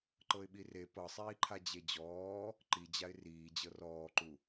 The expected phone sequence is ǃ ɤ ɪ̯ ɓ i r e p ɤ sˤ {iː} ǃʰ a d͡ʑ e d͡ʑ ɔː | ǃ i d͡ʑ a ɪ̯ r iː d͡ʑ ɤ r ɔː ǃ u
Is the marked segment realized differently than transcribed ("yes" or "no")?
no